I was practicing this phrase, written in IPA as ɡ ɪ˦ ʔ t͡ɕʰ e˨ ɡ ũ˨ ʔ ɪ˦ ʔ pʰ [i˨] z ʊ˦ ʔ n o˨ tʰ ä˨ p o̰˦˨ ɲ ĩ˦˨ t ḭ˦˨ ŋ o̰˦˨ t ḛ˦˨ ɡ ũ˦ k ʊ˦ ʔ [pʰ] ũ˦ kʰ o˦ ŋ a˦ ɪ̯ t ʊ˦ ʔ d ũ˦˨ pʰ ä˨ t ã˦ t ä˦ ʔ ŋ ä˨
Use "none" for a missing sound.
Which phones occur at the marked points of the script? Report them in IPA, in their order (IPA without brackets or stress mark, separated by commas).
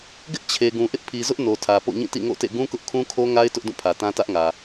i˨, kʰ